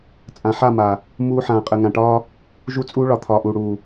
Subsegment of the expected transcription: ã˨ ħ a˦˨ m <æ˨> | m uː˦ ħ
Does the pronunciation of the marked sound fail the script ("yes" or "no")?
yes